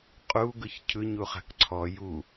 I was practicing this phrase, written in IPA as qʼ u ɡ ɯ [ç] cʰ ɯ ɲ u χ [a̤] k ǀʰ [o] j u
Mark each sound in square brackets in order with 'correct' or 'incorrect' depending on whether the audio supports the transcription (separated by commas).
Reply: correct, correct, incorrect